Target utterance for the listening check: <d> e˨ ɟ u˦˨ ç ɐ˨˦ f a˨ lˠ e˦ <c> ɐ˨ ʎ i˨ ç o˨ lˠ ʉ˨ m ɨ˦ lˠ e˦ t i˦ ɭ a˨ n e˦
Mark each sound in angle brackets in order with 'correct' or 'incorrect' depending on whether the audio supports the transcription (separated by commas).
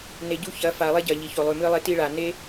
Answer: incorrect, incorrect